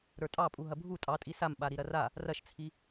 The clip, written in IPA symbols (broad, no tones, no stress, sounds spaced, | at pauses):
ɾ ə˞ tʼ ɑ pʼ u ɦ ɐ bʱ u tʼ ɑ tʼ i s a m ɓ a ɾ i ɾ ɐ r a | r ɐ ʃ t͡sʰ i